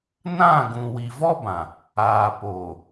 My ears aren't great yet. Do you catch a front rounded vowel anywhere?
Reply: no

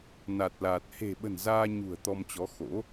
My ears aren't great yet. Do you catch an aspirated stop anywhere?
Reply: no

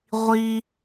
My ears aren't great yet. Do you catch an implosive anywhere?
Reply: no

